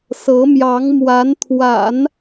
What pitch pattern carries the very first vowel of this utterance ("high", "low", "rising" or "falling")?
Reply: rising